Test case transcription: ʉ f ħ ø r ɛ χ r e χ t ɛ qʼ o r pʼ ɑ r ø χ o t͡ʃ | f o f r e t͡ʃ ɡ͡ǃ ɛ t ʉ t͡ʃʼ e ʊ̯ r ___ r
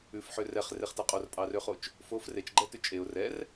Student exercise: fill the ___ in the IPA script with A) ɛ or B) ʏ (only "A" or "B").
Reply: A